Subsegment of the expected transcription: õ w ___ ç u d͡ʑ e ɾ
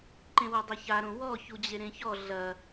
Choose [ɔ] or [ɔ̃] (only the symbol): ɔ